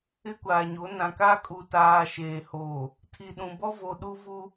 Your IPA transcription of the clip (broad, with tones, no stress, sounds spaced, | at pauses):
ɪ˦ kʷ aː˨ ɲ o˨˦ n ã˨ k a˦ kʼ u˨ t aː˨ ʃ eː˨ h oː˨ | tʰ i˨ ɗ ũ˨ b ɔ˦ v o˨ ɗ u˦ v u˦